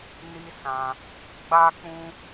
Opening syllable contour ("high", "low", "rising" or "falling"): high